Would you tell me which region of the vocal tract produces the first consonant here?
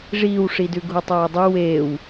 retroflex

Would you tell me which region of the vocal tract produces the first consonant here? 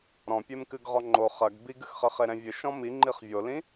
tongue tip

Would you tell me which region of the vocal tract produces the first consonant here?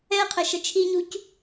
uvula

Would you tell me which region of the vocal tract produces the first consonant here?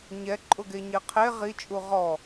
palate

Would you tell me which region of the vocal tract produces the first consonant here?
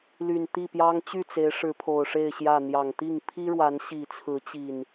tongue tip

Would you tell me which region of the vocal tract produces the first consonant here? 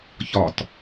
palate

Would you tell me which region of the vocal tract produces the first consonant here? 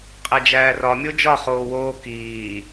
uvula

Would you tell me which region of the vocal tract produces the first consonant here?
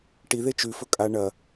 retroflex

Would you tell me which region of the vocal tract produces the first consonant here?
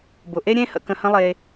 lips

